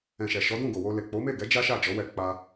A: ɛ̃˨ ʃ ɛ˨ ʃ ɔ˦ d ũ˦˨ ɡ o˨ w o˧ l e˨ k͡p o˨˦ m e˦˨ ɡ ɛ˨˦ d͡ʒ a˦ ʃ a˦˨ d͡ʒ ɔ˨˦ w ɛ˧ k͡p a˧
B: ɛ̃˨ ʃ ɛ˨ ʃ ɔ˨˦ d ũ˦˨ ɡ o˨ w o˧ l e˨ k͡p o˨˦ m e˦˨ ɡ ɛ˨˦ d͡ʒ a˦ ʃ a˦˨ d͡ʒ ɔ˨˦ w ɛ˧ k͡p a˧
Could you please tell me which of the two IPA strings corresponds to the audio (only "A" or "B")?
B